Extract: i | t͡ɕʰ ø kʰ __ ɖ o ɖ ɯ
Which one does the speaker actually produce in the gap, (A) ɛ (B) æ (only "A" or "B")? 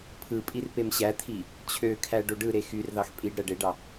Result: B